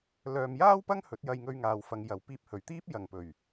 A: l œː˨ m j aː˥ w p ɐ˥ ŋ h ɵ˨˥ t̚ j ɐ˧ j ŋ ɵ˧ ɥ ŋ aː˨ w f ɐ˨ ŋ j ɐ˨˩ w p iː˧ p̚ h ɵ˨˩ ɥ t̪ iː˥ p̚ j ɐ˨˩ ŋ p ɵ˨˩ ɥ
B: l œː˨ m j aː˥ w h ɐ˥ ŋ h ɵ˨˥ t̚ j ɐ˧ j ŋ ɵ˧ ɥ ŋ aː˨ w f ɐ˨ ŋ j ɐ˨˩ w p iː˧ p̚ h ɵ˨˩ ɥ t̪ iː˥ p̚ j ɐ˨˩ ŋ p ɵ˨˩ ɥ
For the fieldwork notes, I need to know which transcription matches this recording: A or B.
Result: A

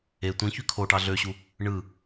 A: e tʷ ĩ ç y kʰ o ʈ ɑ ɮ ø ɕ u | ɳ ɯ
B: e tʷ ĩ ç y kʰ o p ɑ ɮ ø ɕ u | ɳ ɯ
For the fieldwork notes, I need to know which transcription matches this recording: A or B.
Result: A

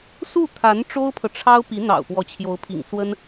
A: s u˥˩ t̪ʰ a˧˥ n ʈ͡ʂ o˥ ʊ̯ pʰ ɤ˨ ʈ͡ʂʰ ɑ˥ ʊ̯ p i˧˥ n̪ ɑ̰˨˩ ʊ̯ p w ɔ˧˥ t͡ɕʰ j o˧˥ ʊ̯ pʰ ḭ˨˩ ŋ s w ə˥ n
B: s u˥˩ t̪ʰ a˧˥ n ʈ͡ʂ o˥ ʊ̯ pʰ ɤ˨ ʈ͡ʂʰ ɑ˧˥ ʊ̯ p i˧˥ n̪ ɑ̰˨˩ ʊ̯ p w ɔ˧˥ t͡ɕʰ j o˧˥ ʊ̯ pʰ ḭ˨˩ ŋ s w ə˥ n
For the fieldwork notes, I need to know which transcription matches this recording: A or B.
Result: A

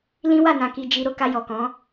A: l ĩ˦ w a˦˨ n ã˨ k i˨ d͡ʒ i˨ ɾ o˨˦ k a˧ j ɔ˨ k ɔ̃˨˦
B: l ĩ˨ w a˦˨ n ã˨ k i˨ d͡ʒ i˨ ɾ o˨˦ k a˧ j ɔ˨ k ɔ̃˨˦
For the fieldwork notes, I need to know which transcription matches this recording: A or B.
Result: A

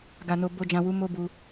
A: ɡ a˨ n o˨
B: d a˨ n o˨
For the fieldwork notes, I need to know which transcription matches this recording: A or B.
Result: A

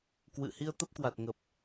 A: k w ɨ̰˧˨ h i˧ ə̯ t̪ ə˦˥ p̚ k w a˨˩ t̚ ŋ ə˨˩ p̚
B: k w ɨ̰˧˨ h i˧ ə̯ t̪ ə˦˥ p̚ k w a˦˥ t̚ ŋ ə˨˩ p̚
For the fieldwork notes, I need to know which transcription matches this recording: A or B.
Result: A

